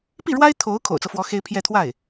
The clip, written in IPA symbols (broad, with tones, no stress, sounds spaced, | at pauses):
p i˥˩ ɻ w a˥ ɪ̯ t̪ʰ o˧˥ ʊ̯ kʰ o̰˨˩ ʊ̯ t͡s ɤ˦ f w ɔ˧˥ x e˥ ɪ̯ pʰ j ɛ˥˧ t̪ʰ w a˥˩ ɪ̯